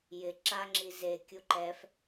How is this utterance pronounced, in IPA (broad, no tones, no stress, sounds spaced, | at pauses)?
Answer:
j ɪ ǁ a ŋ͡ǁ i z e kʲ u ǃ ɛ f